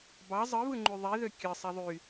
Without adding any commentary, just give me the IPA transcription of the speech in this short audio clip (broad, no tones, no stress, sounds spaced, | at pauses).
b ɑ zˤ ɯ β ɯ ŋ͡ǃ y ðˤ i ð ø kʲ ɯ sˤ e ðˤ y